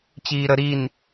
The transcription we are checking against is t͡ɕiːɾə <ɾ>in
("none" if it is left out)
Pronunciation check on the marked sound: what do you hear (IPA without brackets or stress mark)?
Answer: ɾ